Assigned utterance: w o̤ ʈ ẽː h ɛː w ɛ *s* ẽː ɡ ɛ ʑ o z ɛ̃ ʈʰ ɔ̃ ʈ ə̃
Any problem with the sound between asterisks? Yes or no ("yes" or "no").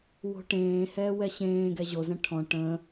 yes